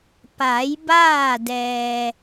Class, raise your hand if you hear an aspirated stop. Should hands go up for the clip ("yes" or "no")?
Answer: no